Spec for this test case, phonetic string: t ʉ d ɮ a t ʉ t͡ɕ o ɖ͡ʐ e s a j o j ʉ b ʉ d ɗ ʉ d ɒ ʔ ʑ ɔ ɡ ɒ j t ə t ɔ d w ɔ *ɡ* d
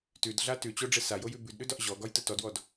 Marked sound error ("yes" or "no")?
yes